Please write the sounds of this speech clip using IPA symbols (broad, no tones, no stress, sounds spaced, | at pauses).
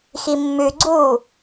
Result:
x i mː ʉ ɡ͡ǀ uː